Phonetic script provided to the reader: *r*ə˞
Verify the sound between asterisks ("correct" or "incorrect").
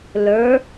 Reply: incorrect